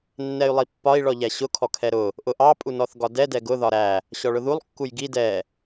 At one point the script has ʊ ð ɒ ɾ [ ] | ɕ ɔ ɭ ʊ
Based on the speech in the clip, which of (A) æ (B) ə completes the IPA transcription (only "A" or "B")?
A